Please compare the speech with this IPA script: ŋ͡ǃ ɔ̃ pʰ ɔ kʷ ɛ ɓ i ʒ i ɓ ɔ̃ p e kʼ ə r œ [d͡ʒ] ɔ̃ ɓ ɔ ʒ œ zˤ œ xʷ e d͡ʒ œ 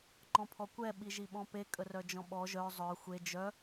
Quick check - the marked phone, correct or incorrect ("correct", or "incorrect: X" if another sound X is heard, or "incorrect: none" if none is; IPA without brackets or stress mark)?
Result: correct